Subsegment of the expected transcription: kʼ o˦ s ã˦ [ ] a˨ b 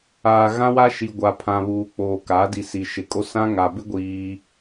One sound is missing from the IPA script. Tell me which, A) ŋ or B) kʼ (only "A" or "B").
A